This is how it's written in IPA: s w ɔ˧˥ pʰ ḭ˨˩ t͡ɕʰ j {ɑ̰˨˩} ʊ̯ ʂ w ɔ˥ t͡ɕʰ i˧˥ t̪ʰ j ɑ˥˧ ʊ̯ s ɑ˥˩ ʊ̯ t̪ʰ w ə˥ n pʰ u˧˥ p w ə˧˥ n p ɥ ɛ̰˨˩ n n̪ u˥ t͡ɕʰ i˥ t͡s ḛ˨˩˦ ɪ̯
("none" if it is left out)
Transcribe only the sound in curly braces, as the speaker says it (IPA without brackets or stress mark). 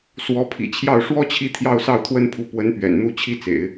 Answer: ɑ˥˩